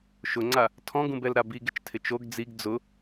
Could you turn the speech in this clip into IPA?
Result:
ʃ ʊ ŋ͡ǀ a | tʰ ɔ̃ ɡ ũ b ɛ l ɾ a b i ɡ ɪ t͡ʃ tʰ ɪ t͡ʃ o ɡ d͡z i ɡ d͡z ʊ

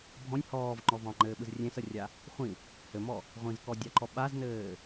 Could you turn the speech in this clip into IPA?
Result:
bʱ ɔ̃ nʲ h ɔː v ŋ͡ǃ ɔ v ɑ̃ ŋ͡ǃ ɘː ɓ ɯ z rʲ ẽ s ə rʲ a | χʷ ĩ | h ɘ m ɔ | ʁʷ ĩ z k ɔ dʲ ɑ ǃ ɔ ɓ a z n ɘː

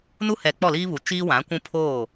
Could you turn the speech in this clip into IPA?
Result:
n u˦ h ɛ˨ k͡p ɔ˦˨ l iː˦ β u˨ t͡ʃ iː˦ w ã˨˦ kʷ ũ˦ pʰ oː˦˨

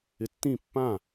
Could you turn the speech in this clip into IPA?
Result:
ɪ tː ĩ pː ã

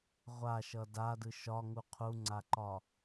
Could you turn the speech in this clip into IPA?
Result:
ʁʷ a ʃ ʌ d a d ɯ ʃ ɒ ŋ u qʰ u ŋ͡ǀ a ǃ ɒ

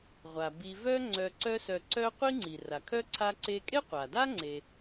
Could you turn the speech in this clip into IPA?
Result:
ʁʷ a˩ b i˨ v œ˦ ŋ͡ǀ œ˨ ǀ œ˦ s œ˨ ǀ œ˥ qʷ i˦ ŋ͡ǀ i˩ r a˩ kʰ œ˥ ǀʰ a˦ ǀ e˦ kʼ e˥ qʷ a˩ d a˥ ŋ͡ǀ e˨

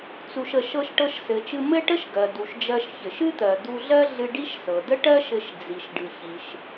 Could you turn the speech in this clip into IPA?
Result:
t͡s u˩ ʃ ə˩ ʃ ɤ˧ ʃ ʈ ɤ˧ ʃ s ɘ˩ t͡ʃ ɨ˧ m ɘ˥ ʈ ə˥ ʃ ɡ ɜ˩ d u˩ ʃ d͡ʒ ɜ˧ ʃ ç ɘ˩ ʃ ɨ˥ t̪ ɜ˩ d̪ u˧ ɮ ɜ˥ ɮ ɨ˧ ɖ i˥ ʃ s ɤ˩ d ə˥ ʈ ɜ˥ ʃ ɘ˧ ʃ d͡z i˩ ʃ ɖ ɨ˩ ç i˩ ʃ

